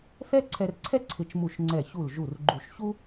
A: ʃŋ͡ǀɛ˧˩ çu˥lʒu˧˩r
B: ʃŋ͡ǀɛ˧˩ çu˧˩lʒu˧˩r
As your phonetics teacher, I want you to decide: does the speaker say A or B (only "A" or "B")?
B